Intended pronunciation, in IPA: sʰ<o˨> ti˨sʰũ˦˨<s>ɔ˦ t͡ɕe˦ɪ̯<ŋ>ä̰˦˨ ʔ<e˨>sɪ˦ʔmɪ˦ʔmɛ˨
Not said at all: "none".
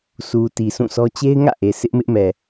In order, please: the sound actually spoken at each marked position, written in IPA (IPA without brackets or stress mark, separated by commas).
u˨, s, ŋ, e˨